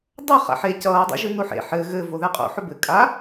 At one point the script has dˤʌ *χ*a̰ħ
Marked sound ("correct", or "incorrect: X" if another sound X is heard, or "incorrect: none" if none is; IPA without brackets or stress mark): correct